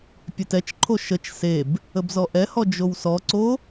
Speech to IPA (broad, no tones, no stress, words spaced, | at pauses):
pʲetɛt͡ʃǃʰo ʃət͡ʃ seb | əbzɔʔɛhɔ d͡ʒowsɔǀo